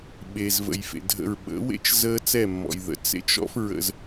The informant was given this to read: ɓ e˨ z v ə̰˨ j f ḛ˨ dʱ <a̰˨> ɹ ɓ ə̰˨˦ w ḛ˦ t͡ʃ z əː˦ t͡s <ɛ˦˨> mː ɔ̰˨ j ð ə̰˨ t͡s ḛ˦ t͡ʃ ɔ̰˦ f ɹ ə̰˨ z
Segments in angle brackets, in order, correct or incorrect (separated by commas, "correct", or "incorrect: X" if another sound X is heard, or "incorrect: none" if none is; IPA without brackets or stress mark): incorrect: ə̰˨, correct